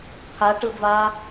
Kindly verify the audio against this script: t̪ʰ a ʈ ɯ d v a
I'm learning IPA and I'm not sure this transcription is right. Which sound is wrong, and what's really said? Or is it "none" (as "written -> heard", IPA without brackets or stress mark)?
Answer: none